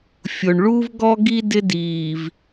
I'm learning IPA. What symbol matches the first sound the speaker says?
fʲ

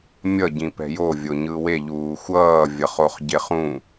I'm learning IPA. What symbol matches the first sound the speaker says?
mʲ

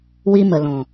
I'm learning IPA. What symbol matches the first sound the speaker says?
w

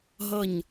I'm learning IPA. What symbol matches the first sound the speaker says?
ɦ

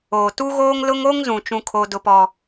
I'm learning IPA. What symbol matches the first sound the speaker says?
oː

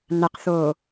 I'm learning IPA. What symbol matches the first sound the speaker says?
n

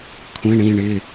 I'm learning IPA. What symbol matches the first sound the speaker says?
kʷʰ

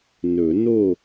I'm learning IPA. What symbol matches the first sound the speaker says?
n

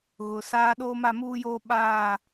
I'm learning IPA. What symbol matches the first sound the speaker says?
ɣ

